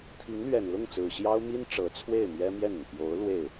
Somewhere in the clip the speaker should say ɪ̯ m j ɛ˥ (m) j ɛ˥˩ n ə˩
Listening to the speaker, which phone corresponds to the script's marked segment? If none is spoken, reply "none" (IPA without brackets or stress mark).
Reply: m